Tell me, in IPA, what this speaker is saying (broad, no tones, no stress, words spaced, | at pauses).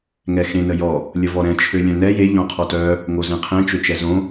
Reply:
ŋɛxẽ nəjɔ | lʲəvɔɾɛ̃ t͡ʃʰølʲœ̃nɛ je ʎɔ̃qʰɔtœ | ŋozɛ̃qʰɛ̃ t͡ʃøt͡ʃɛzõ